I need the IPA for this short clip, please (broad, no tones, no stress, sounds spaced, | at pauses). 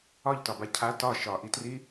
ɒ ʎ t ɒ b a cʰ a t ɒ ʃ ɒ ʔ i t r i